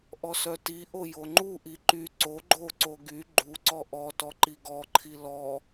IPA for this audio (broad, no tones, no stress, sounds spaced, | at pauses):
ʔ ɔ s œ t i ʔ o j o ŋ͡ǃ u ʔ i ǃ y ǀ o ɡ͡ǃ o ǀ o ɡ y ɡ͡ǃ u ǀ ɔ ʔ ɔ t ɔ ǃ i ɡ ɔ ǃʰ i l ɔ